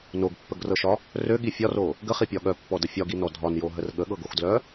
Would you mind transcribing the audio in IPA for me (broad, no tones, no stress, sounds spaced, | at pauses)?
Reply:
n o ɡ pː ə ɡ r ɤ ʃ ɒ | r ø ɠ i fʲ ɒ r o | ɡ ə χ i pʲ ɒ ɠ œ pː ɔ d ə fʲ ɒ ɡ i n ɔ dʱ ɒ n j o ɦ ə r ɠ ə ɠ ɤ ɡ o x d l œ